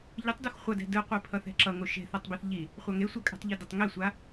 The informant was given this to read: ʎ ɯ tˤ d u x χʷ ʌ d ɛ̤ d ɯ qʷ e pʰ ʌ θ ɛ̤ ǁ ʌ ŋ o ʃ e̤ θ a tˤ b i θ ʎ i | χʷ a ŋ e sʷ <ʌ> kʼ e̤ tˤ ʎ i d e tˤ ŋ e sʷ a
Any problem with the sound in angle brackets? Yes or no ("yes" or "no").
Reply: no